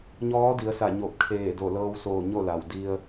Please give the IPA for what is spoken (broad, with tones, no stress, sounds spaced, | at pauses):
ɲ ɔː˧˥ d i˩˧ ə̯ s a˧˩ ɲ o˧˩ p̚ kʰ eː˧˩ d o˧˩ l ɤː˧ w s oː˧˩ ɲ o˥˨ l a˩ w d i˧ ə̯